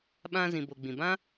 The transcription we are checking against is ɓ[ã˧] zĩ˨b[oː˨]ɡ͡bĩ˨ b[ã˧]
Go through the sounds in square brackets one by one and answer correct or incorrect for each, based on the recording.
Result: correct, incorrect: o˨, incorrect: ã˦

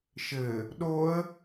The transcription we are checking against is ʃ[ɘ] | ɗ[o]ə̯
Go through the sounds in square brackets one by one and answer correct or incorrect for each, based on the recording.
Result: correct, correct

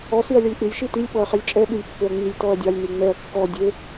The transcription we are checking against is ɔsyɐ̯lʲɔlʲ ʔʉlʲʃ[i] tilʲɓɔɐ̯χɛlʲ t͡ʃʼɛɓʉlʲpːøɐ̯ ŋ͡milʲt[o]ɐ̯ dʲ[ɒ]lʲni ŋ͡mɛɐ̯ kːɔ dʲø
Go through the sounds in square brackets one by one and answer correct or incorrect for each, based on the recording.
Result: correct, incorrect: ɔ, incorrect: ɑ

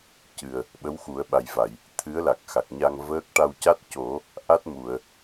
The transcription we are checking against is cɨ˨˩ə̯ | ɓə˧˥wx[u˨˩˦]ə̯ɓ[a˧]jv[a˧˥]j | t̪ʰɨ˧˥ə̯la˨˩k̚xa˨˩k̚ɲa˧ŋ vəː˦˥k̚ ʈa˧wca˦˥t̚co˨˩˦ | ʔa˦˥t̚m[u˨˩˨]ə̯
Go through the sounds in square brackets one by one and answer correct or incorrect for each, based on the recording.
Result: correct, incorrect: a˨˩, incorrect: a˨˩˨, correct

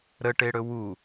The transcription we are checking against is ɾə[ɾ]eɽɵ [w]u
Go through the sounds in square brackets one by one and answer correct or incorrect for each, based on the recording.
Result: incorrect: ʈ, correct

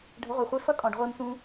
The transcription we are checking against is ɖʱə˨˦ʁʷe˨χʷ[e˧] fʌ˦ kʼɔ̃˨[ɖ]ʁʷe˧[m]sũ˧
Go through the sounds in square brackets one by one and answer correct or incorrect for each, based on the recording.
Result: correct, correct, correct

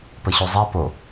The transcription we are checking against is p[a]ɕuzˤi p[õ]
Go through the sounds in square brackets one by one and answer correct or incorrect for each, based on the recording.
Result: incorrect: ə, incorrect: o

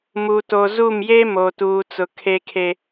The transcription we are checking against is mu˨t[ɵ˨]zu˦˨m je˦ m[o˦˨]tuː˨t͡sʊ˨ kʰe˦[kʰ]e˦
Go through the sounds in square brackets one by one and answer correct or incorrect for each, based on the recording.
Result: incorrect: o˨, incorrect: o˨, correct

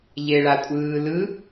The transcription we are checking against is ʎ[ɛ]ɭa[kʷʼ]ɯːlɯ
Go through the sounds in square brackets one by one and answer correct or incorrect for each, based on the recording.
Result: incorrect: e, correct

